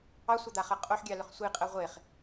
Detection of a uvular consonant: present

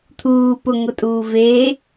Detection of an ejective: present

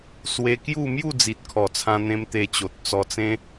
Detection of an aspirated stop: present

